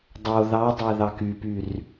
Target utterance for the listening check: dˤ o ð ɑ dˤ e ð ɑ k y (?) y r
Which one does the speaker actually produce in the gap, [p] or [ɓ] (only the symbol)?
p